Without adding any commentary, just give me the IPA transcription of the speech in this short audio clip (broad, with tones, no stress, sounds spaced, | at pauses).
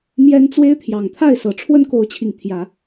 m j ɛ˦ n t͡s w e˦ ɪ̯ t̪ʰ j ɑ˨˩ ŋ t̪ʰ a˥˨ ɪ̯ s ɤ˨˩ ʈ͡ʂʰ w ə˦ n k o˨˦ ʊ̯ t͡ɕʰ i˨˩ ŋ t̪ʰ j ä˨˦